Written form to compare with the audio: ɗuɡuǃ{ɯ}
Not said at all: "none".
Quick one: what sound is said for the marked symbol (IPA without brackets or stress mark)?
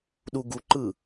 ɯ